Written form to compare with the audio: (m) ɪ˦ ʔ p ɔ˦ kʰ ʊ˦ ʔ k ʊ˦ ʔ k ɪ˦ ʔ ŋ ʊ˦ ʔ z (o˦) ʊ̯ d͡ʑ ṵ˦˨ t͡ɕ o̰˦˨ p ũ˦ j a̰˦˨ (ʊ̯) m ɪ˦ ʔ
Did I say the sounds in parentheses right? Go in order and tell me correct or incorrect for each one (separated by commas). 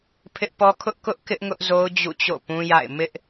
incorrect, correct, incorrect